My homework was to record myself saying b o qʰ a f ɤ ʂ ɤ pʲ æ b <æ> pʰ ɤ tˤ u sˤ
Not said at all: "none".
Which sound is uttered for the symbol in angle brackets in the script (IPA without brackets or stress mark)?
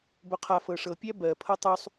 ɜ